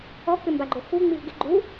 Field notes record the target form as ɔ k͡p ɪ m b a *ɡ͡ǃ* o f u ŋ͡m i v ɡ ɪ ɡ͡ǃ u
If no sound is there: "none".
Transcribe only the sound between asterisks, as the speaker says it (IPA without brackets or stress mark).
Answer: ɡ͡ǃ